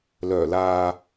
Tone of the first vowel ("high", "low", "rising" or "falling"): low